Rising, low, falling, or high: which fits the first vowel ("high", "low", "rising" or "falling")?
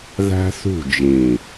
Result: high